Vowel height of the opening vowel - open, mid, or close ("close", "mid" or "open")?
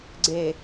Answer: mid